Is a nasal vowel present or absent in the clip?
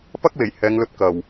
absent